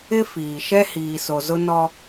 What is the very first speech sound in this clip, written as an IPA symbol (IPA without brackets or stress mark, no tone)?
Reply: ɪ